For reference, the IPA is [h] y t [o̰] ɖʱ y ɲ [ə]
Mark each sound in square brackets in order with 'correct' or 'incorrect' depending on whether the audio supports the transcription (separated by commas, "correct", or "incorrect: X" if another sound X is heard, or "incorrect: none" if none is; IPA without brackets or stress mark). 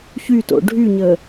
incorrect: ç, correct, correct